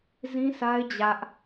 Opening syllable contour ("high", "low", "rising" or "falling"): high